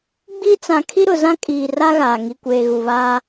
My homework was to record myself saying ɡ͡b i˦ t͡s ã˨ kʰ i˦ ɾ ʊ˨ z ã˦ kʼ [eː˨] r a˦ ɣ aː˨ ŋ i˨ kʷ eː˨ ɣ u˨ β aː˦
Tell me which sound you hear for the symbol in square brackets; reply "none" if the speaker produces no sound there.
iː˨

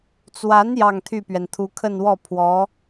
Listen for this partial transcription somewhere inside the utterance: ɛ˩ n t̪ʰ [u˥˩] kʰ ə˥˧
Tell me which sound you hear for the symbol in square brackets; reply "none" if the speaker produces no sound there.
u˧˥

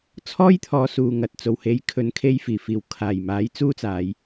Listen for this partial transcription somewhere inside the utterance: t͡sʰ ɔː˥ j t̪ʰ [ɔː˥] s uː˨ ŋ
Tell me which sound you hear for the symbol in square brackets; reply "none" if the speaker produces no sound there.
ɔː˨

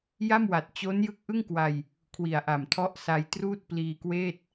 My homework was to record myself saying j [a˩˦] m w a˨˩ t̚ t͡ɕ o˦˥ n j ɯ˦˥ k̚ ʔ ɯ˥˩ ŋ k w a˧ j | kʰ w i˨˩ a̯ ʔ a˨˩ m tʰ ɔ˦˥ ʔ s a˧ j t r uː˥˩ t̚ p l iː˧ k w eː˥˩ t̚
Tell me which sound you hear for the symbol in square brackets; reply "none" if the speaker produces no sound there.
a˥˩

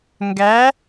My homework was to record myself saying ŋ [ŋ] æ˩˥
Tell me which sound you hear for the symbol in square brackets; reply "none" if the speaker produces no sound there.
ɡ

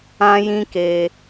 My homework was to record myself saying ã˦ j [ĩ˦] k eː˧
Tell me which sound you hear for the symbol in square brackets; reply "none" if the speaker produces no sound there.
ĩ˦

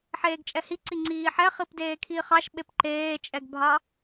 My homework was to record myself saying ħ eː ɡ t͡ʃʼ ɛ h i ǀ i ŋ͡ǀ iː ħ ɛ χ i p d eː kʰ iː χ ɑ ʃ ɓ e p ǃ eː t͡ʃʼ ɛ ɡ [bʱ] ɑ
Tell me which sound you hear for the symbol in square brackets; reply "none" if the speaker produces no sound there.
bʱ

